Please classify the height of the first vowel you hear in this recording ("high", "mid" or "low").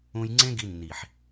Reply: high